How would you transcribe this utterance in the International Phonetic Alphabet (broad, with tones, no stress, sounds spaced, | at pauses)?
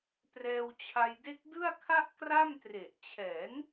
p r ɛː˧ w t͡ɕʰ a˧ j d e˦˥ k̚ d ɯ˥˩ a̯ kʰ a˥˩ ʔ k r a˥˩ m t r e˨˩ ʔ t͡ɕʰ ɛː˩˦ n